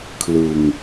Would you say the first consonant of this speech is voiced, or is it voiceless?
voiceless